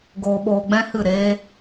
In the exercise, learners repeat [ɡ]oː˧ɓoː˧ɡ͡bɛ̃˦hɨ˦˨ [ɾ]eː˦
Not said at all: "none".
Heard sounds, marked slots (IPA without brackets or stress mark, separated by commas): ɡ, ɾ